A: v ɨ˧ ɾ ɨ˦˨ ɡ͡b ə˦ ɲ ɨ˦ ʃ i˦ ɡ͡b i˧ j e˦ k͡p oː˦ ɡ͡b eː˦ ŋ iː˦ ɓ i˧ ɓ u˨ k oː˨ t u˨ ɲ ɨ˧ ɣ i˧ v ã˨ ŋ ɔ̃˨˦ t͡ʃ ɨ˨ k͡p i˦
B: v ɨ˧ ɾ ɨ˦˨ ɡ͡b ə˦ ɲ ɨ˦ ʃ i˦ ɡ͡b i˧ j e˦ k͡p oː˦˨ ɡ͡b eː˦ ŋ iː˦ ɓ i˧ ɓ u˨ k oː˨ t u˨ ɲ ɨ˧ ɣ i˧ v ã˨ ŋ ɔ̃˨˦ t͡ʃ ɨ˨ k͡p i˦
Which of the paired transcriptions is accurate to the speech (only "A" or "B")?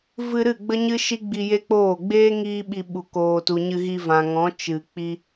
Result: B